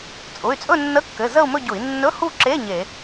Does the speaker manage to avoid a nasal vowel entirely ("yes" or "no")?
yes